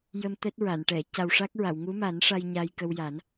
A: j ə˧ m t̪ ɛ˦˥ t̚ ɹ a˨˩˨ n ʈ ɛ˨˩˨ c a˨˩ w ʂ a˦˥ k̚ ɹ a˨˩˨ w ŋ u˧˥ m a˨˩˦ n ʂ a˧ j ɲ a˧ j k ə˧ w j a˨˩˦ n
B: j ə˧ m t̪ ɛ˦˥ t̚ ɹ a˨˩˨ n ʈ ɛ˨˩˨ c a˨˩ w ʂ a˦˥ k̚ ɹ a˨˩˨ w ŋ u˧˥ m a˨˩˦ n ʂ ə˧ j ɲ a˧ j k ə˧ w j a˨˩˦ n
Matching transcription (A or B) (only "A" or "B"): A